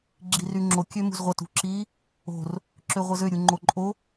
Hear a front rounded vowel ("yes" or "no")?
yes